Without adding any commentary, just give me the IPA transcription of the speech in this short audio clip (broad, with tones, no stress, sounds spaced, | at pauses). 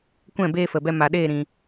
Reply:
kʷ ɛ̃˦˨ b eː˧ f ə˨ b ɛ˧ m a˨ ɗ eː˦˨ ɾ ĩ˨